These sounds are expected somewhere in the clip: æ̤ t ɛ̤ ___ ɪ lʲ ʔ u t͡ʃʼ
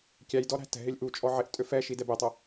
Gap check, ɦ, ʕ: ɦ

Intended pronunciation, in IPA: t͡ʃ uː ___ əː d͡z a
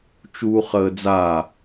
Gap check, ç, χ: χ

